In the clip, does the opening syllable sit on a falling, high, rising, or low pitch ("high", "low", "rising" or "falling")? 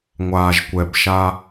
low